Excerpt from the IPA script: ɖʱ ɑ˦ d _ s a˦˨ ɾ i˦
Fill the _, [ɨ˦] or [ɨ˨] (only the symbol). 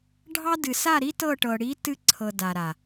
ɨ˨